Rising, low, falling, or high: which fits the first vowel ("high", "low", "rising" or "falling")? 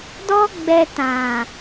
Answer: high